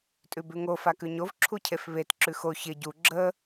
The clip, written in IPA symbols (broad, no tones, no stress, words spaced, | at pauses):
tʼʉbʉŋo fakʉɲov ǁʰucʰefβet ǁʉxo çɪ ɟu ɡ͡ǁə